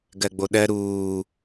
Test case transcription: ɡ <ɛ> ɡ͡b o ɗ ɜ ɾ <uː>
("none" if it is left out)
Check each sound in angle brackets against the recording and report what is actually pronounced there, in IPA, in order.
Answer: ɜ, uː

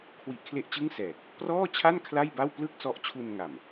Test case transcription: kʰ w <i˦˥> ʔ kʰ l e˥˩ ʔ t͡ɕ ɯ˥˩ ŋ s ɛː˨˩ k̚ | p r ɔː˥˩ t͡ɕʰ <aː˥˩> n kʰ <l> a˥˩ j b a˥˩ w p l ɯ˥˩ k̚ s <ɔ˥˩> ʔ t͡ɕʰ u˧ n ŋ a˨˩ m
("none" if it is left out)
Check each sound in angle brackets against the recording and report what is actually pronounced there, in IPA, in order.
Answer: i˦˥, a˥˩, l, ɔ˦˥

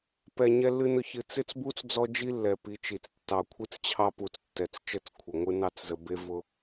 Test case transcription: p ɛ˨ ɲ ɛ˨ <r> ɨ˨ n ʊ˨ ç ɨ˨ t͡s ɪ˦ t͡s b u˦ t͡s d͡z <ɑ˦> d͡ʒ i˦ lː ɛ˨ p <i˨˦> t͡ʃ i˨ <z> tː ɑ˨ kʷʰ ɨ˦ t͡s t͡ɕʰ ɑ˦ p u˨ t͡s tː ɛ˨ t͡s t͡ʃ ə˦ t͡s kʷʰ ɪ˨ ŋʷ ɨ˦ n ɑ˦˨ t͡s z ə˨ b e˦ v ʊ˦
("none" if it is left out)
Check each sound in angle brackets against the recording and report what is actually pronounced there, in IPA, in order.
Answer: lː, ɔ˦, i˨˦, t͡s

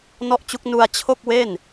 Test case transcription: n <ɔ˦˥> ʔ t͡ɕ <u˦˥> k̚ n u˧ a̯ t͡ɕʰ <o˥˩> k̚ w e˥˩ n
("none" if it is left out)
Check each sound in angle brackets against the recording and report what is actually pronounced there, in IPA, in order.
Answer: ɔ˥˩, u˦˥, o˥˩

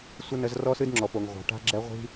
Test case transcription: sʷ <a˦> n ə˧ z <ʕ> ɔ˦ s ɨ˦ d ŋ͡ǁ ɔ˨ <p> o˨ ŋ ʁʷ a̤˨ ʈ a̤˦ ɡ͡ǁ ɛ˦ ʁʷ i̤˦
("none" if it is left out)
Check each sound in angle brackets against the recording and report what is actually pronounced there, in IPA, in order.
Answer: ə˦, r, p

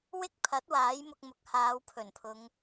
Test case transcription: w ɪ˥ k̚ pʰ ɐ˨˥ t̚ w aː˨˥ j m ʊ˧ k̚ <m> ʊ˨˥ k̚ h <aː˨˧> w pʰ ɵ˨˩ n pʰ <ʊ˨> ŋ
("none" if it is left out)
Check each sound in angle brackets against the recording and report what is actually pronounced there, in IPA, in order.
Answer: m, aː˨˧, ʊ˨˧

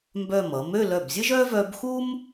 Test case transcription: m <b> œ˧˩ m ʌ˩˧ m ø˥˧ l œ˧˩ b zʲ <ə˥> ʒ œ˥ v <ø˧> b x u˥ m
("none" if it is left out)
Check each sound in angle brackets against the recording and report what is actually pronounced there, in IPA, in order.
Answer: b, ə˥, œ˧

